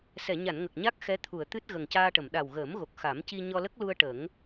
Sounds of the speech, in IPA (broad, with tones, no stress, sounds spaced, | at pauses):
s ɛ˨˩˨ ɲ a˨˩˨ n ŋ ə˨˩ k̚ ɲ a˦˥ k̚ x ɛ˧˥ t̪ʰ u˨˩˨ ə̯ t̪ ɨ˦˥ t̚ ɣ ə˨˩ ŋ c aː˧ ʈ ə˨˩˨ m ɗ a˨˩ w ɣ əː˨˩˦ m ɣ o˨˩ k̚ x a˨˩˦ m c i˧ ɲ ɔ˧ l ə˦˥ k̚ l u˧ ə̯ ʈ ə˨˩˦ ŋ